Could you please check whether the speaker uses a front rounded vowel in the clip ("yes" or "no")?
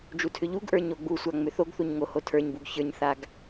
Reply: yes